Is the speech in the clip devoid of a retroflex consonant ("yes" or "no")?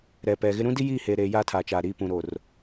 yes